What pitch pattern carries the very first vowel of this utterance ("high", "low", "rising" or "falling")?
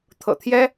low